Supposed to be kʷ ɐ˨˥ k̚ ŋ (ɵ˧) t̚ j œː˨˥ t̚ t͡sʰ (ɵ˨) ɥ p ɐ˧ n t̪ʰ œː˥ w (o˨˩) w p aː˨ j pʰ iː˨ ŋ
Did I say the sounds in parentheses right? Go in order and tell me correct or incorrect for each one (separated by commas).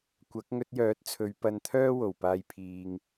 correct, incorrect, correct